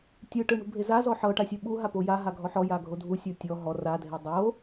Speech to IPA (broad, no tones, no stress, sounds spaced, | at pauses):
tʲ ɯ ʈ ɯ ɳ ṳ bʱ e z a z ɔ ħ ɤ ʈ a sʲ u ɓ u ɦ a p o j a ɦ a ɡʱ ɔ ħ ɔ j a ɡʱ o dʱ u sʲ o tʲ ɔ ɦ ɔ r a dʱ e dˤ o